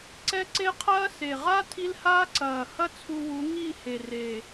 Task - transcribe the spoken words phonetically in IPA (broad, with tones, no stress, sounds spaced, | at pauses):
ǀ ɛ˦ ǀ e˦ qʰ ɐː˦ s e˨ ʁ a˦ tʰ i˦ l h aː˦ ǀ ɐː˨ h ɐ˦ t͡sʰ u˧ w u˨˦ ŋ i˦˨ h e˨ r e˨